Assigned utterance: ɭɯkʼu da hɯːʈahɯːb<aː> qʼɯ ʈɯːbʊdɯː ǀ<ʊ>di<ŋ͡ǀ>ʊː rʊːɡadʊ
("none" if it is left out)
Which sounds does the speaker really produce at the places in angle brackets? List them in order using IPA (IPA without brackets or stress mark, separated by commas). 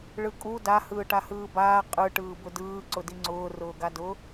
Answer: aː, ʊ, ŋ͡ǀ